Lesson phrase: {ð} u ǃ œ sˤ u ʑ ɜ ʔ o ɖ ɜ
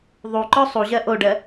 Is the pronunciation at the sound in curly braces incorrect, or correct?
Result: incorrect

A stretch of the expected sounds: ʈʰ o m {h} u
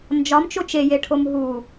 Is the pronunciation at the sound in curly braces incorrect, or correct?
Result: incorrect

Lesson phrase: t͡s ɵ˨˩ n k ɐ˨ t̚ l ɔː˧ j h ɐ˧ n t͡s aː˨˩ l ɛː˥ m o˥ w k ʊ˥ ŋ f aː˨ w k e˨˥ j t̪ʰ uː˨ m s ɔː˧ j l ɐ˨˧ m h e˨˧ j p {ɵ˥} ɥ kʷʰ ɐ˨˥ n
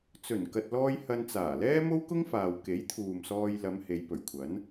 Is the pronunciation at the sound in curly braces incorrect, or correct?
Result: incorrect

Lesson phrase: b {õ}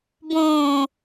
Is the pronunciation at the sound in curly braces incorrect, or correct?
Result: incorrect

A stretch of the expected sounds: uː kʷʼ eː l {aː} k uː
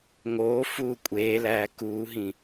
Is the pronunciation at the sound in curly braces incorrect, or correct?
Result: incorrect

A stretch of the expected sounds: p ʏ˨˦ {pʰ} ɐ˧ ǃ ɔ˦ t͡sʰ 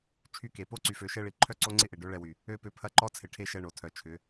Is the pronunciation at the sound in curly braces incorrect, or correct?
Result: correct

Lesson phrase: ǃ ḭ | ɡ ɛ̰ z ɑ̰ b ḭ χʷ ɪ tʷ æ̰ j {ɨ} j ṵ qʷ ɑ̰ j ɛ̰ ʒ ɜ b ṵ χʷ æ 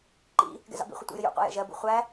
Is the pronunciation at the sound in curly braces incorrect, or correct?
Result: incorrect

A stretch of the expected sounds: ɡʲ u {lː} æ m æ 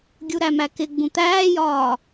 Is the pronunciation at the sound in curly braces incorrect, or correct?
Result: incorrect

